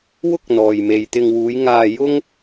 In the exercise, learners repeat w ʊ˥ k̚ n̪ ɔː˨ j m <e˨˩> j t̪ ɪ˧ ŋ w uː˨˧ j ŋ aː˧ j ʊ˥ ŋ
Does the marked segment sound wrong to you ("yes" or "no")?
yes